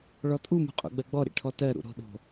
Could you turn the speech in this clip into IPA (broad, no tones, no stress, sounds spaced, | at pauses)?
ɭ ɔ tʼ u m ṳ qʼ o̰ ɡ͡b ɜ ɡ͡b ɔ ɾ ḭ ʈʰ ɔ t ɜ ɾ ṵ ɾ o̤ ɗ o̤